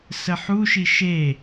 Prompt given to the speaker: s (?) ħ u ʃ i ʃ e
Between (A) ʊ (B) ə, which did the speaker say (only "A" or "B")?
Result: B